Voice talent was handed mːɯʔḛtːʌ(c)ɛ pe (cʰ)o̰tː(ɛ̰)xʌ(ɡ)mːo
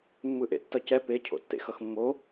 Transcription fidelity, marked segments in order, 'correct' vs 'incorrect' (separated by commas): correct, correct, incorrect, incorrect